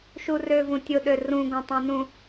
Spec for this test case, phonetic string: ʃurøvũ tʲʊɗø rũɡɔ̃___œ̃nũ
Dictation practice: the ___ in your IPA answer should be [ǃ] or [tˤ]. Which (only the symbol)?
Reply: tˤ